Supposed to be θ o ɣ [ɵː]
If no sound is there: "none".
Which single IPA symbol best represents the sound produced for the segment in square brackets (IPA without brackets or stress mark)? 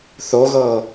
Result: ɤː